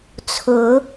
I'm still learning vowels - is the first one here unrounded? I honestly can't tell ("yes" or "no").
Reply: no